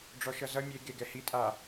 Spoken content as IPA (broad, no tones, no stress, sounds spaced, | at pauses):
ɖ͡ʐ ɔ ʃ ʌ z ʌ mʲ e ɡ e ɡ ɛ h i tʼ a